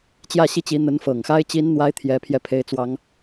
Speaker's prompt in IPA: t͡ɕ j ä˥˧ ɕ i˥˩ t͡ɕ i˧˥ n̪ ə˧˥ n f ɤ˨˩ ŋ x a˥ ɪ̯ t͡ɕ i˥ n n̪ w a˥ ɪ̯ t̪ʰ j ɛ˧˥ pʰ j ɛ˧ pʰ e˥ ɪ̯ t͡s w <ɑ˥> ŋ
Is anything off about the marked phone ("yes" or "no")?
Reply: no